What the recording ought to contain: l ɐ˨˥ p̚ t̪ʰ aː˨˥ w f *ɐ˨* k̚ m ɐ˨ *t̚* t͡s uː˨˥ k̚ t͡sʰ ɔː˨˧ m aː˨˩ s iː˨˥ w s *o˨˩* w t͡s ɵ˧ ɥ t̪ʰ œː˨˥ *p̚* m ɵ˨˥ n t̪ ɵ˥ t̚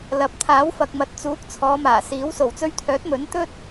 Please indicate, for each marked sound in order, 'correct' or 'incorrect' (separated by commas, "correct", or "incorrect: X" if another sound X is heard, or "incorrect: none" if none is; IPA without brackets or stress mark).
correct, correct, correct, incorrect: t̚